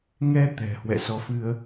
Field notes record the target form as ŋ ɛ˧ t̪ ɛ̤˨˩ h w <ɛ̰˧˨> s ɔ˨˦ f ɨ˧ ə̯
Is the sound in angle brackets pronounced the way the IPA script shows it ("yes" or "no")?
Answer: yes